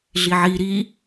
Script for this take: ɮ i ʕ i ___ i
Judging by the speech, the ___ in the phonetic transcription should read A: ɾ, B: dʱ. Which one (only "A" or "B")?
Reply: A